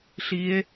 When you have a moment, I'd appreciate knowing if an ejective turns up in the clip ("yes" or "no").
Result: no